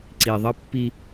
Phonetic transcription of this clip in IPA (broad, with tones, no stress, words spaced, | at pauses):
ǀi˨ðˤʌ˦pːi˦